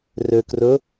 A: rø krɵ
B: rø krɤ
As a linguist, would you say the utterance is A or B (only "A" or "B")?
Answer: A